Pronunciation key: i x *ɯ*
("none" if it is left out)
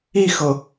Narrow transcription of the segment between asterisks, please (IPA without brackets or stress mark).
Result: ɤ